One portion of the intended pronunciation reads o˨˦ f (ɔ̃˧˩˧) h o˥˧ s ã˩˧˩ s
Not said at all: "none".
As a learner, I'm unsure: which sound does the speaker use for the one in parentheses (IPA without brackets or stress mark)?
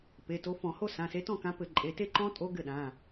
ɔ̃˧˩˧